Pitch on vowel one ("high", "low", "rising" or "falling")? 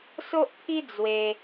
high